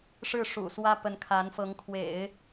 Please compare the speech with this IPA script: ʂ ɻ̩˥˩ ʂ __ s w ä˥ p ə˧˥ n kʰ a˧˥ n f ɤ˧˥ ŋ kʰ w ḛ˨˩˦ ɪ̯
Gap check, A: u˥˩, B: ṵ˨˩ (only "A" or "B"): B